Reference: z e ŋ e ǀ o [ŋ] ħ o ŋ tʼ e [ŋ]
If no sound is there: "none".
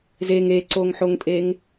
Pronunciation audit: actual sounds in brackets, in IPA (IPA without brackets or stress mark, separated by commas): ŋ, ŋ